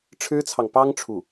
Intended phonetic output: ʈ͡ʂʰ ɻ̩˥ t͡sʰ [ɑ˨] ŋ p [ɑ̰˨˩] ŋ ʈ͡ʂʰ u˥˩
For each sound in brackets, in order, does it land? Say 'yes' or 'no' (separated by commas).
yes, no